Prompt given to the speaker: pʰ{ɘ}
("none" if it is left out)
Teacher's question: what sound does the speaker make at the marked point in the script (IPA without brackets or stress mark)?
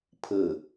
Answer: ɘ